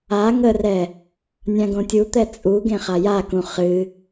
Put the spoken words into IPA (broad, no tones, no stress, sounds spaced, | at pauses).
a ŋ ə r ɛ | nʲ ã ɡ õ tʲ u t̪ ɛ t͡sʼ u ɡ ẽ χ a j a k ũ χ ɨ